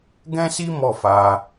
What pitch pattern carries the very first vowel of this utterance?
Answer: high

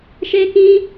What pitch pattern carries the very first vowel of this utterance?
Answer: high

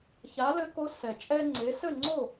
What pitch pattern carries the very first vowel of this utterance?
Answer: rising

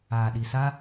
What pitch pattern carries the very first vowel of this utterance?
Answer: low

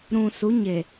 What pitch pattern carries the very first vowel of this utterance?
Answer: low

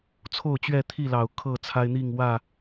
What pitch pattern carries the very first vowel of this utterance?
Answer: falling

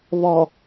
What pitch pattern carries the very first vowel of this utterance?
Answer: low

